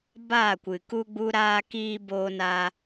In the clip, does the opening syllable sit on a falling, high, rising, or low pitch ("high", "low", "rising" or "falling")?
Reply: falling